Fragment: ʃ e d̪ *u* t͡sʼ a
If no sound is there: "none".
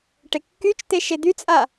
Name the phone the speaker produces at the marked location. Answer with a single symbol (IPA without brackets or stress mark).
y